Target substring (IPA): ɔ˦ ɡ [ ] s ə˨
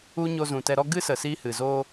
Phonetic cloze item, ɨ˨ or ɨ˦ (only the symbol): ɨ˦